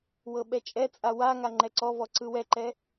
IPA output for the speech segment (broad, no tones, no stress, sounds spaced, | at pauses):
w ɤ ɓ ɛ t͡ʃʼ ɛ t͡sʼ a w a ŋ a ŋ͡ǃ ɛ ǀ ɔ v ɔ ǀ ɯ w ɛ ǃ ɛ